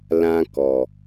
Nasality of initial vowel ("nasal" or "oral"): nasal